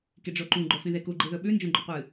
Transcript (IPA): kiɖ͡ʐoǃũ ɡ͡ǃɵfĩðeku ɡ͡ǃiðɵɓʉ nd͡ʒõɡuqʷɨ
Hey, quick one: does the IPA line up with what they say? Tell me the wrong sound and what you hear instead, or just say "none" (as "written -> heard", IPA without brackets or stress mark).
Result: ɡ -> ɡ͡ǃ